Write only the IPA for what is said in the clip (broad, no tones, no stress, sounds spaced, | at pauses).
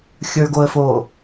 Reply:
xʲ ə˞ ɡ o ə̯ f o